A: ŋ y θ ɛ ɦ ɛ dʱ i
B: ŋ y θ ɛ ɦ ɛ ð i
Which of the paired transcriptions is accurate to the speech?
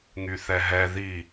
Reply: B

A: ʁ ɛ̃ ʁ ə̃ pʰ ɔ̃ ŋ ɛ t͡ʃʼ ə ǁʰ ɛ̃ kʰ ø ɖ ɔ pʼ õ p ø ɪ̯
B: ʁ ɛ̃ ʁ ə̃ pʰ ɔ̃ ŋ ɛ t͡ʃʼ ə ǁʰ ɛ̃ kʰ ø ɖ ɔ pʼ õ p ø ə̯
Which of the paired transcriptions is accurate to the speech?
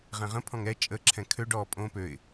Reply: A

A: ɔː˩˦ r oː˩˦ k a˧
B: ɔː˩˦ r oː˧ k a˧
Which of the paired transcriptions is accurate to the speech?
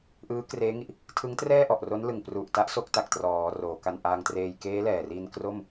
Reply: A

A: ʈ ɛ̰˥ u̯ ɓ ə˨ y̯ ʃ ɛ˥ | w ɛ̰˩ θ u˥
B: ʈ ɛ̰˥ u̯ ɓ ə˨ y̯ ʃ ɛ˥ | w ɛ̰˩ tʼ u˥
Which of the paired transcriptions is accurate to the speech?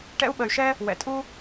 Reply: B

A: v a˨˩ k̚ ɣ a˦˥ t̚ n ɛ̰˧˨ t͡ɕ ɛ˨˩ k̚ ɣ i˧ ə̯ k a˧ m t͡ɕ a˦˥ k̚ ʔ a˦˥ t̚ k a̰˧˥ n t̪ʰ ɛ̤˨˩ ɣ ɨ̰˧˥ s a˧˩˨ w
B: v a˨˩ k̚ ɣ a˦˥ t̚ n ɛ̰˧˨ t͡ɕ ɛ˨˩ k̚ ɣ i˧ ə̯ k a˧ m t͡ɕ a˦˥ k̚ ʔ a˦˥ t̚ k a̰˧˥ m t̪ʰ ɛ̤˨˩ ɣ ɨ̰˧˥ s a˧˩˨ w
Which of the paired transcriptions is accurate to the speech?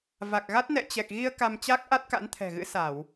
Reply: A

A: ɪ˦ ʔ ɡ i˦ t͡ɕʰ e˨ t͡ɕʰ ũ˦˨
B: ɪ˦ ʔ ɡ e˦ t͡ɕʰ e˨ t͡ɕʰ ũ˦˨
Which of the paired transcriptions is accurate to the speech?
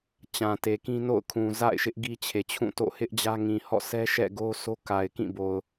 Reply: A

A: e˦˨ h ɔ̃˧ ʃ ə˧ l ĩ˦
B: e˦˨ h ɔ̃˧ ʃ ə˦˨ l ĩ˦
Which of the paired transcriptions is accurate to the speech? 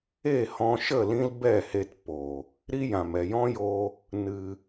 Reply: B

